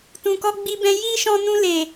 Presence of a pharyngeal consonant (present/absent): absent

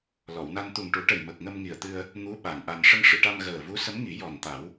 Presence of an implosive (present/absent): present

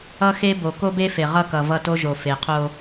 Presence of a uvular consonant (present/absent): present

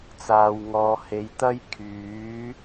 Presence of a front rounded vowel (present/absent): present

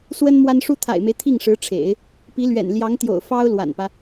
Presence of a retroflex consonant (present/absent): present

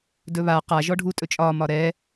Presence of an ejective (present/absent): present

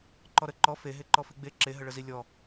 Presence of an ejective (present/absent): absent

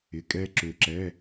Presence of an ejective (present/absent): present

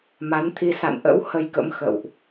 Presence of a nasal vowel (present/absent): absent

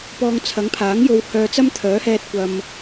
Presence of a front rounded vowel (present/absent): present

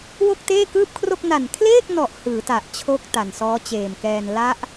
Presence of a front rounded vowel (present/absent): absent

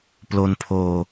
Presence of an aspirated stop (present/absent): present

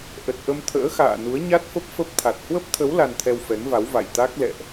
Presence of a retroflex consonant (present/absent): absent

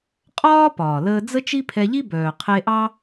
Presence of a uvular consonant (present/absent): present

